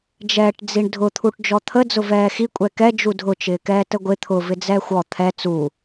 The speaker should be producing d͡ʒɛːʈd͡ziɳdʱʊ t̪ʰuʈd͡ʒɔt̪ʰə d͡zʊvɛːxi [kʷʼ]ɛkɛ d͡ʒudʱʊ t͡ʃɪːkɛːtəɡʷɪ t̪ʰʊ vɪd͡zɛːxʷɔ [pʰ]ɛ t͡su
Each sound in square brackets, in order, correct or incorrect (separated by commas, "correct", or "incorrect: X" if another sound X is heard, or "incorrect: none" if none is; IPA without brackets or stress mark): correct, incorrect: t̪ʰ